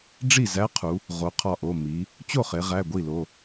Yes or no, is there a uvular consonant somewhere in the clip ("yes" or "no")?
yes